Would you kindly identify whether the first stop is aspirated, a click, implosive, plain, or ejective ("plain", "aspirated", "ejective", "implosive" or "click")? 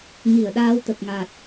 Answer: implosive